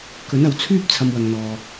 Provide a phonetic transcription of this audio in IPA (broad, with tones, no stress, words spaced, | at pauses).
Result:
kɵ˨˥nɐ˨wt͡sʰyː˥p̚ t͡sʰɐ˧mwɐ˨ŋn̪ɔː˨